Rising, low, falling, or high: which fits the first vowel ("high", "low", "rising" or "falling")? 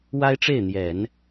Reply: high